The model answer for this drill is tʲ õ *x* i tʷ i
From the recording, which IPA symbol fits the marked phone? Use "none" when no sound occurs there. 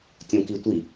k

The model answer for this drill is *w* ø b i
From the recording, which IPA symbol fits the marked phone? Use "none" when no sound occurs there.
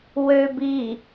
w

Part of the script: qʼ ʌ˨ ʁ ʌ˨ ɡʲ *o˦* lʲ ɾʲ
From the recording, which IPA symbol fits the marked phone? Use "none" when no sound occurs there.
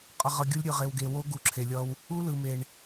o˦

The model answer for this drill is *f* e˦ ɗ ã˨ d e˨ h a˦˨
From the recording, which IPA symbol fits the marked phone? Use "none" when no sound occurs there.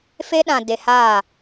f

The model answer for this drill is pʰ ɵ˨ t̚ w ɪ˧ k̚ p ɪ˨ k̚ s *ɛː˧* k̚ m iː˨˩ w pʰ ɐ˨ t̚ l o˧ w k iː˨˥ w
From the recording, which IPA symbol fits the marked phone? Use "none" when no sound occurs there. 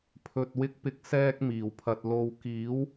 ɛː˧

